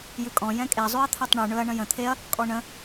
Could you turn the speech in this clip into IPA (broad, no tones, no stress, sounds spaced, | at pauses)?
j ʉ kʼ ɔ̃ j ɛ̃ kʼ e zˤ ʉ ɐ̯ t̪ʰ ɛ tˤ ɳ ʉ ɳ ɵ ɐ̯ ɳ ə̃ j ə̃ t̪ʰ e ɐ̯ | kʼ ɔ ɳ ə̃